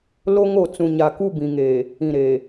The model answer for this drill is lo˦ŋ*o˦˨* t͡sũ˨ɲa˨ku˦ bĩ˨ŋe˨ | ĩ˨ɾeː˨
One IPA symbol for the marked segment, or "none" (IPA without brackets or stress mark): o˦˨